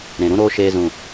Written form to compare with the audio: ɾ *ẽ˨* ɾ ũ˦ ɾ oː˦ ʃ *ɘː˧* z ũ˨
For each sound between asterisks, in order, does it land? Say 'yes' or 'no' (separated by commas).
yes, no